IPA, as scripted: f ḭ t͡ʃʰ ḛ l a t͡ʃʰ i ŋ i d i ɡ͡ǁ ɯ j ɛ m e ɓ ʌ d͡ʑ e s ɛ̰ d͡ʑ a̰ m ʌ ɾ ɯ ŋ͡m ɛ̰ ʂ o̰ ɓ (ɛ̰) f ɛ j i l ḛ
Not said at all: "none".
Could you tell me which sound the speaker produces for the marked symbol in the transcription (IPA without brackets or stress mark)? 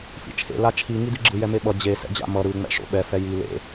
ɛ